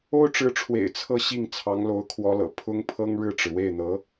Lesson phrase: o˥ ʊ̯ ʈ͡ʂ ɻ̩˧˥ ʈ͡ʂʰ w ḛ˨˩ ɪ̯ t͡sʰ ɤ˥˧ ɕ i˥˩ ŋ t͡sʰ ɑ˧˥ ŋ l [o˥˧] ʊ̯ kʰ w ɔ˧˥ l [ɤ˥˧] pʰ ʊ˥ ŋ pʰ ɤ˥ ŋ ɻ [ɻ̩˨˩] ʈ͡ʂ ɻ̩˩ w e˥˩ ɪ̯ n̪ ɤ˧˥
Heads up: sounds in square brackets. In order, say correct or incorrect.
incorrect, incorrect, incorrect

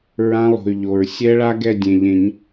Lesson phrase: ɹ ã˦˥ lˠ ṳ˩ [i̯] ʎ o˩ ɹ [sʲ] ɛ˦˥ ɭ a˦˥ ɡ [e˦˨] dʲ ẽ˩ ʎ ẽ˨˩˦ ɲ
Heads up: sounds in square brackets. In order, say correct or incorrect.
incorrect, correct, incorrect

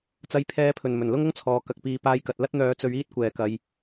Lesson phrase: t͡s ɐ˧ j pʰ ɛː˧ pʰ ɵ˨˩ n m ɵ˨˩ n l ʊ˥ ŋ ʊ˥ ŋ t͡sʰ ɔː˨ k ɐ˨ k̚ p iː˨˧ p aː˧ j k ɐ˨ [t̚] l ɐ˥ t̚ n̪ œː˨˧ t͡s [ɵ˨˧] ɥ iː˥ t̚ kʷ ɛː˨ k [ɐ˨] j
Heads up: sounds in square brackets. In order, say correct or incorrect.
correct, correct, incorrect

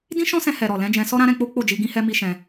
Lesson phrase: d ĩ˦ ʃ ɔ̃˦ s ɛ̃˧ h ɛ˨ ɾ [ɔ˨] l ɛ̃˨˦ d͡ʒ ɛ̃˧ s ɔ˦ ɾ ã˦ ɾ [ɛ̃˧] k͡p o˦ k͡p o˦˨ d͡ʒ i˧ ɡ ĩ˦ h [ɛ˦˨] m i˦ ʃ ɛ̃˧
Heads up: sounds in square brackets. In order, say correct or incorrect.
correct, correct, incorrect

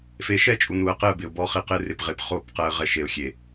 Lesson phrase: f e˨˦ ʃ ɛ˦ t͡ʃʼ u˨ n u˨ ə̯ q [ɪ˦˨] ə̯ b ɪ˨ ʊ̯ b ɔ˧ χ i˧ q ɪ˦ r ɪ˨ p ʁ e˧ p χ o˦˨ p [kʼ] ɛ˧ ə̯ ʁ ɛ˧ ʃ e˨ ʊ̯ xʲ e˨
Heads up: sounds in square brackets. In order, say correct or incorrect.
correct, incorrect

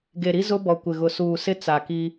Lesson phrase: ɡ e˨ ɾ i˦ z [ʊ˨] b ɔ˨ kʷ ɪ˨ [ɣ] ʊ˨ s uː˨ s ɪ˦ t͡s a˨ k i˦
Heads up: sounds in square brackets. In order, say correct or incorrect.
incorrect, correct

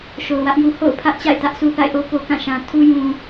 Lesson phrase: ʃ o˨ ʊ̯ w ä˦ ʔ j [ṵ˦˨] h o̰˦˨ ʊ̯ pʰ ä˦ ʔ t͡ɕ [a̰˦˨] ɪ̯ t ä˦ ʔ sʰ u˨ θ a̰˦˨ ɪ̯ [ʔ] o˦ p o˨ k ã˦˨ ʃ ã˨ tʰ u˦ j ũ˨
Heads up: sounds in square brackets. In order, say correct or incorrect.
incorrect, correct, correct

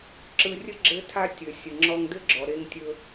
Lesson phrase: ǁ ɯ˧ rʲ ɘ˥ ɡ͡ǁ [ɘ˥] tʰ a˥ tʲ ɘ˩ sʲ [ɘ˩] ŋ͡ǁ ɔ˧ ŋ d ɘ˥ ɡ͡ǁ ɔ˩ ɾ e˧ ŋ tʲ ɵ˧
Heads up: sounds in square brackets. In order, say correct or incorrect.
correct, correct

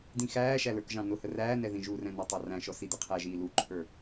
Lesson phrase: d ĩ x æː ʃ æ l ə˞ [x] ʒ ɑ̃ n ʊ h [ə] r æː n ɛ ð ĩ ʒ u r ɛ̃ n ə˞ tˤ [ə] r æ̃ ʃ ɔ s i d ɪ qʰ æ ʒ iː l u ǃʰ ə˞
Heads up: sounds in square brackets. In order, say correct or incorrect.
incorrect, correct, incorrect

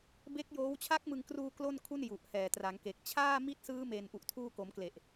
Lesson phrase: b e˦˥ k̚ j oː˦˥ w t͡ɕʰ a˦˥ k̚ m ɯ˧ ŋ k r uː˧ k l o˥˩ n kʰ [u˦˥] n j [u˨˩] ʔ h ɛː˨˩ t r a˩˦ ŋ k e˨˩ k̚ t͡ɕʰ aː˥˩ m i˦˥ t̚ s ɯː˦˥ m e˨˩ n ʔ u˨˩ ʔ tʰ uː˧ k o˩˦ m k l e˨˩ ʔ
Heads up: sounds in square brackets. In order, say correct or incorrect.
incorrect, correct

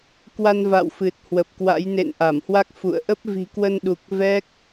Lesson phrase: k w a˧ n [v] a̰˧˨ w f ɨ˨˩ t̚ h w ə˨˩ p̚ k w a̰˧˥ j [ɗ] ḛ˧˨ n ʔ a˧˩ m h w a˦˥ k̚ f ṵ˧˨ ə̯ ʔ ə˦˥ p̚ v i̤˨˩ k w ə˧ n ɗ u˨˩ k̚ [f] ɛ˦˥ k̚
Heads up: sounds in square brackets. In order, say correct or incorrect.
correct, incorrect, incorrect

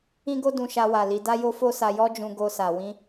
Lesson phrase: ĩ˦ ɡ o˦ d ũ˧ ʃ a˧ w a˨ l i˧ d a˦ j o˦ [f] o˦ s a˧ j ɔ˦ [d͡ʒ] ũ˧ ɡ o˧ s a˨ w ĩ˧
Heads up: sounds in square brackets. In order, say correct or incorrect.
correct, correct

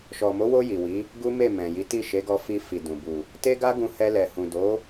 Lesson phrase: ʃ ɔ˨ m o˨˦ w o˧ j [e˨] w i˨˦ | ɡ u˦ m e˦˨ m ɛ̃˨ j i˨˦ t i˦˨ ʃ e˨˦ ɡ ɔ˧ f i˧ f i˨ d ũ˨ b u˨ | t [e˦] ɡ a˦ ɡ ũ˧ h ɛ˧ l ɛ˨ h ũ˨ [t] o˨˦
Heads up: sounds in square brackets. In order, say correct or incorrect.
incorrect, correct, incorrect

